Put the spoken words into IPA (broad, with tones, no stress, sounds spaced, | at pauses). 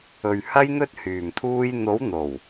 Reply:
ɵ˨ ɥ h ɐ˧ j n̪ ɵ˧ t̚ h yː˨˩ m t̪ʰ uː˧ j n̪ o˨˥ w n̪ o˨˩ w